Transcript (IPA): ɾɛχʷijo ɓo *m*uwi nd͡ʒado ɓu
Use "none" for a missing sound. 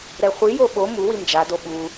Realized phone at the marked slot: m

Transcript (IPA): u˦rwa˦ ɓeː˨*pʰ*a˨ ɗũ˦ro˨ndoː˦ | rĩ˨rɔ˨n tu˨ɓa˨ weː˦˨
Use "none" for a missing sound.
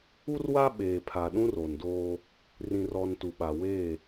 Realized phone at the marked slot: pʰ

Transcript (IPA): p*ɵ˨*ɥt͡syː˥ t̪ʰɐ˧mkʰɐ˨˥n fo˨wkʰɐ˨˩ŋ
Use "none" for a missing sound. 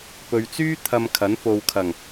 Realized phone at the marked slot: ɵ˨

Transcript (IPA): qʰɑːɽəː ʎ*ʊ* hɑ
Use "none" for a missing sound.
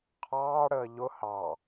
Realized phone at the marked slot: ʊ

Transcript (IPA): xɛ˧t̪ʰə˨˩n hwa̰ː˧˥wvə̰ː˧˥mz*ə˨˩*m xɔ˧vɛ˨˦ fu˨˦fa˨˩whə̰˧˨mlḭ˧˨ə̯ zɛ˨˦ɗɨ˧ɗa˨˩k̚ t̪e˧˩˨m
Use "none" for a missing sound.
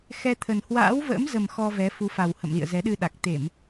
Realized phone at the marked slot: ə˨˩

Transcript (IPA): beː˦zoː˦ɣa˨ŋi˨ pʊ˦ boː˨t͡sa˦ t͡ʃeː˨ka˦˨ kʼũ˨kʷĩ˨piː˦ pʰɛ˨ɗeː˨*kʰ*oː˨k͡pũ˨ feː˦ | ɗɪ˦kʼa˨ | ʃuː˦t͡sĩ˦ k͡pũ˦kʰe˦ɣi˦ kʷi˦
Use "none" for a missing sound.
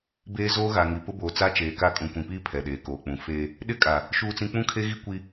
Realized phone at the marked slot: k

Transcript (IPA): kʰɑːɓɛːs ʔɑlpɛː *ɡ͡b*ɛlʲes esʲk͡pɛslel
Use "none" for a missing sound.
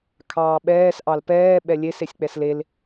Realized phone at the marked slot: ɓ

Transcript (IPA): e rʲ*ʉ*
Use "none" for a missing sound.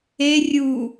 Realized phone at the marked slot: u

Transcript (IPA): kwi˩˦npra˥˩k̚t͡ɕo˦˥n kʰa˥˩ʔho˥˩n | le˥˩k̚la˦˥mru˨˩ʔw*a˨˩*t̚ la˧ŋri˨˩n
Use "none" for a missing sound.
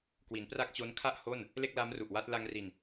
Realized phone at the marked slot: a˦˥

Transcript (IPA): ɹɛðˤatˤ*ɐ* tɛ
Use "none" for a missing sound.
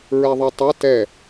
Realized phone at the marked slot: ɐ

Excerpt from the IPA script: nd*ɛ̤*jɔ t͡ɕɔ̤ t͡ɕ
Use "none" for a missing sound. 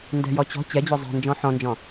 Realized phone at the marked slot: ɛ̤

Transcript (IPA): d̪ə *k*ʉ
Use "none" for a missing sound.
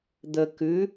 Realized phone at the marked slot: k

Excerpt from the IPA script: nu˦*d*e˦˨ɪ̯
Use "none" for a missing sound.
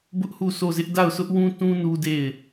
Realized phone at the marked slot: d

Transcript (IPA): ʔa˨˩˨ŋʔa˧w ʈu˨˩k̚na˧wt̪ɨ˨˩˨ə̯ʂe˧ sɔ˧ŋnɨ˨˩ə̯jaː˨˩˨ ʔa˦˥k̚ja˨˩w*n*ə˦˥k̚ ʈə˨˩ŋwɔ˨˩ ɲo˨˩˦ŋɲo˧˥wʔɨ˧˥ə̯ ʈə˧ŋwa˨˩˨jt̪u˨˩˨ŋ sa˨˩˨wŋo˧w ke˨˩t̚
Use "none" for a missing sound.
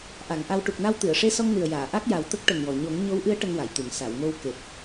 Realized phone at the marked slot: t̪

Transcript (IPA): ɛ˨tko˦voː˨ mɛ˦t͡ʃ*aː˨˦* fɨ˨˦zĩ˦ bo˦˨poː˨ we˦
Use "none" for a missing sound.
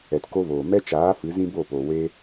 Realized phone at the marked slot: aː˨˦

